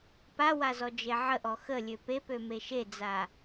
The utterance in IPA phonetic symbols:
p a w a z ɔ d͡ʒ e ʕ ə ʔ ɔ x ə lʲ ø p e p ø m e ʃ e d͡z a

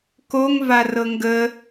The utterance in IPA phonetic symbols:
k o ŋ v a r ɤ ŋ ɡ ə

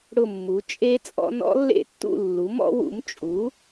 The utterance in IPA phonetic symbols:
ɽ ʊ˥˨ mː u˩˥ t͡ʃʼ e˦˥ t͡sʼ ɔ̰˦˥ n ɔ̰˦˥ lː ḛ˥˨ tː ṵ˥˨ lː u˩˥ m ɔ̰˦˥ w ṵ˩˥ m t͡ʃʼ u˩˥

